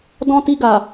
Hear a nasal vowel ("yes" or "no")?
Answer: yes